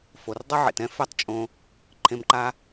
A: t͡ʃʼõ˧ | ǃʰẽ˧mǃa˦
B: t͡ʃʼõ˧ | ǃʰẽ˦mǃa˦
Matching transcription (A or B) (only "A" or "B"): A